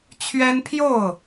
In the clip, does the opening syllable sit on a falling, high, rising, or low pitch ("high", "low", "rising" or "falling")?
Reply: high